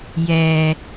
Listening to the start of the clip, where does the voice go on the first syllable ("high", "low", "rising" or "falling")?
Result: low